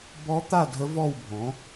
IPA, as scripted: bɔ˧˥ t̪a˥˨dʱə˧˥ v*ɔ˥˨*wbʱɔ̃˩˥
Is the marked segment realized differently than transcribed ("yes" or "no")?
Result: no